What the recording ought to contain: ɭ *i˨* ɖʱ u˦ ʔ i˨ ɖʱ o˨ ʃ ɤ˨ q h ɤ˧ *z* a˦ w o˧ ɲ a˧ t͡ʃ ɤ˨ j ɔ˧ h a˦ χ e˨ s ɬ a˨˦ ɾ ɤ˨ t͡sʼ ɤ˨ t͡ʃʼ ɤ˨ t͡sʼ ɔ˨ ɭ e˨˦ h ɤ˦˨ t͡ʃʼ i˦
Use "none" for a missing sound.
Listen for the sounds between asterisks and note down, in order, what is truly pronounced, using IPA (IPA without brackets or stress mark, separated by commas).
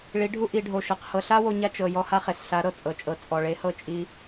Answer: i˨˦, ɬ